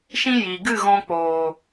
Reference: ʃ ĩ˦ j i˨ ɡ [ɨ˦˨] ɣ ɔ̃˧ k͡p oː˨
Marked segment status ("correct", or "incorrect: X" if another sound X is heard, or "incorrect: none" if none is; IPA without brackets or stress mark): correct